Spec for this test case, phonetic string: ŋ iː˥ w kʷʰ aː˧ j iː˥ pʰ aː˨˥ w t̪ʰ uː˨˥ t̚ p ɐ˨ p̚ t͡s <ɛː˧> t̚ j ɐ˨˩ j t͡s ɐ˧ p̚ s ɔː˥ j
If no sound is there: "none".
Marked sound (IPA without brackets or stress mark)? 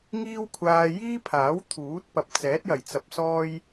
ɛː˨˥